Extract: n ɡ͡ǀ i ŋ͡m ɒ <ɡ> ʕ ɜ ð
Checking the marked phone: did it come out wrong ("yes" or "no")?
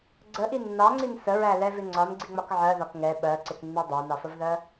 yes